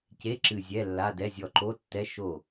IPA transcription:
c e˧˥˧ ǁ ɨ˧˩ zʲ ɛ˧˥˧ lː a˧˥˧ d ɛ˧˥˧ zʲ ɔ˧˩ ǃ o˧˥˧ tː ɛ˧˥˧ ʃ o˧˩

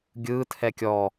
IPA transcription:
ɡʲ ɯː tʰ ɛ kʲ ɔ

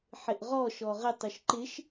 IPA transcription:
ħ ɪ ʔ ʁ ɔ ʃ ɔ ʁ ɪ tˤ ʉ ʃ ǃ ɪ ʃ

